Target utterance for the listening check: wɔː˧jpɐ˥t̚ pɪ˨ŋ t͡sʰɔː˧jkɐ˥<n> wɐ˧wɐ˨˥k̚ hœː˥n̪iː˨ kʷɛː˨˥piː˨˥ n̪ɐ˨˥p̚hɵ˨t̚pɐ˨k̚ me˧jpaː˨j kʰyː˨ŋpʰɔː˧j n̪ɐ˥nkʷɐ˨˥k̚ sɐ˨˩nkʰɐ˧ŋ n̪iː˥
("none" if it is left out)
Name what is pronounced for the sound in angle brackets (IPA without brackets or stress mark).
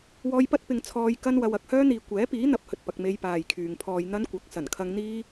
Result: n